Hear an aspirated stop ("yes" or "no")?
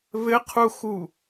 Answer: yes